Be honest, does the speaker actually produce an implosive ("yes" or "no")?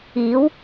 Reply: no